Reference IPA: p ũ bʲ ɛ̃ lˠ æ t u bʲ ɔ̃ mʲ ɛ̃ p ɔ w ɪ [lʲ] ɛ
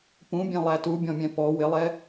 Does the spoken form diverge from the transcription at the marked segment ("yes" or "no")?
yes